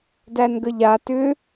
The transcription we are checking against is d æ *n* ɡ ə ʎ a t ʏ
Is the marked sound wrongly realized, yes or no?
no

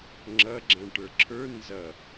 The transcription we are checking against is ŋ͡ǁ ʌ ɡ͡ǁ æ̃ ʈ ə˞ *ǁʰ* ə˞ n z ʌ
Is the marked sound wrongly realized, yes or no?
no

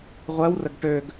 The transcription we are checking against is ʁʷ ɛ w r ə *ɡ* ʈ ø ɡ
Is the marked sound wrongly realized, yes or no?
no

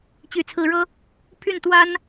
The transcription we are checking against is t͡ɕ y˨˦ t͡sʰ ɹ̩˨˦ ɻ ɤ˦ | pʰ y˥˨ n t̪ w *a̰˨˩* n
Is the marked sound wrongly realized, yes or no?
yes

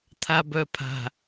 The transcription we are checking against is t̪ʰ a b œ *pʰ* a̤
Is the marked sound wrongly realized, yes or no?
no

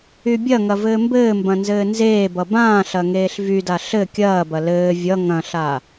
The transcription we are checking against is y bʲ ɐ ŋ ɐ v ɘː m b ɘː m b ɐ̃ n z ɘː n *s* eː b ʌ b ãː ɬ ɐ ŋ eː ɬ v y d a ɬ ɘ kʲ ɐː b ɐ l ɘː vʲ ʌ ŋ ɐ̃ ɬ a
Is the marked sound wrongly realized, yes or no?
yes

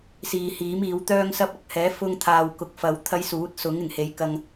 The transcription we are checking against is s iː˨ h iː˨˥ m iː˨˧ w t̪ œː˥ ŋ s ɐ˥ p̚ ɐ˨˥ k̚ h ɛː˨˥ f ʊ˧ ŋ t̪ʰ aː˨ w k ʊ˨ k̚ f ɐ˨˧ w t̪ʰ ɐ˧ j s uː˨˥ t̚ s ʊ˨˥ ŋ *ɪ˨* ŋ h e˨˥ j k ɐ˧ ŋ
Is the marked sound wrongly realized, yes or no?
yes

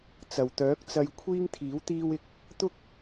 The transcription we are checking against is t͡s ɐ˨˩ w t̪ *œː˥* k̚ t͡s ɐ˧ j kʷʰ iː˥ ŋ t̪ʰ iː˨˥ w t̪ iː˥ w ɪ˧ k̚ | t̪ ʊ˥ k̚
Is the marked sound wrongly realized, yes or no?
yes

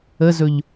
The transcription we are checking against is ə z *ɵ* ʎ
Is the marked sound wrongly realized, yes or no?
no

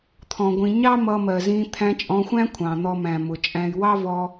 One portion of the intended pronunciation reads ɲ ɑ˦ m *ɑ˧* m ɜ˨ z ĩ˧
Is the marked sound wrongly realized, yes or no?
yes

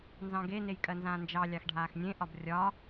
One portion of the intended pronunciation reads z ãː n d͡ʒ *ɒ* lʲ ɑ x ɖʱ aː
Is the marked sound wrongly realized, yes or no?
yes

